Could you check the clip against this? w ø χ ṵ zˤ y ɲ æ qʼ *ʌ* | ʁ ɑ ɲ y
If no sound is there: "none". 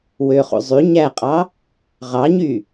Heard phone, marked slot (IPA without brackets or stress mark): ɑ